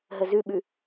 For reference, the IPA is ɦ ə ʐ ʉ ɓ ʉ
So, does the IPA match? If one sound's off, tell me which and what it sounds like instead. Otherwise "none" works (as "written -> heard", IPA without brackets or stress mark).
ʐ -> z